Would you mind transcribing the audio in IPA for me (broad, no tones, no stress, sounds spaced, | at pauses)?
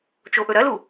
t͡ʃ o ʔ ɵ ɾ ɐ l u